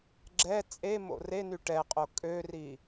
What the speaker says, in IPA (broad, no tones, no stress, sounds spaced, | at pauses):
ɡ͡ǁ ɛ t͡sʼ e m o̰ r e n y ʈ ɛ qʼ o kʼ ø r i